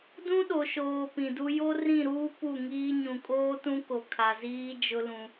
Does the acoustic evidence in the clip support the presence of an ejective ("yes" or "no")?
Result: yes